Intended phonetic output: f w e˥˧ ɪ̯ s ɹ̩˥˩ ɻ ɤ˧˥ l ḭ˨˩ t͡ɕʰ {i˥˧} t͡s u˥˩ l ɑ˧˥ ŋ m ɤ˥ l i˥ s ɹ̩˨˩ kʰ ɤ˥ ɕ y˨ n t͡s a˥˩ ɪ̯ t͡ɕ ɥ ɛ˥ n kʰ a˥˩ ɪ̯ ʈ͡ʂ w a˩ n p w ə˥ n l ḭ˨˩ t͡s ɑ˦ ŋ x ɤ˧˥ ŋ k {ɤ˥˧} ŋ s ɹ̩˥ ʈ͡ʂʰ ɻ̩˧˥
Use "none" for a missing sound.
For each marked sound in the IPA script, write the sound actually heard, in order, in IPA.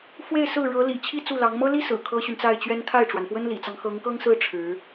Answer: i˥˧, ɤ˥

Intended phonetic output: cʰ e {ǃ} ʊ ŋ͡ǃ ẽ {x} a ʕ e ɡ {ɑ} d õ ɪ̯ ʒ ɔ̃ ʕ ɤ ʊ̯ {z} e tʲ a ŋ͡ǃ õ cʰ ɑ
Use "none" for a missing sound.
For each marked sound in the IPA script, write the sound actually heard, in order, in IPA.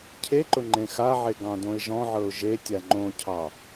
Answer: ǃ, x, ɑ̃, ʒ

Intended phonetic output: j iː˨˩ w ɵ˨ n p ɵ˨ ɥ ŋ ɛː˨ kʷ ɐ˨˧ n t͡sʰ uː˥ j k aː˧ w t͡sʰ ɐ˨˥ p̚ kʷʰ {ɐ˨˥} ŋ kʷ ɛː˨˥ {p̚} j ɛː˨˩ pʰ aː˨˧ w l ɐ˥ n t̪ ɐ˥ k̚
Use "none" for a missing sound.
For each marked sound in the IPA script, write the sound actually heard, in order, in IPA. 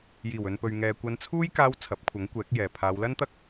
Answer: ɐ˨˥, k̚

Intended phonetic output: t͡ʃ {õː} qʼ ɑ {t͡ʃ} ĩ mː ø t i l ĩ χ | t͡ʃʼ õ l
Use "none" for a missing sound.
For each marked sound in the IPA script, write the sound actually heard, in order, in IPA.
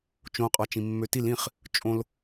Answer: õ, t͡ʃ

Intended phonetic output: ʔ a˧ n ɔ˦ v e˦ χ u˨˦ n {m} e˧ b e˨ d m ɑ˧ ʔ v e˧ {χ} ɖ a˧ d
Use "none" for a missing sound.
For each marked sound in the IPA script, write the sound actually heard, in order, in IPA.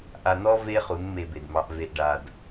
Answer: m, ʔ

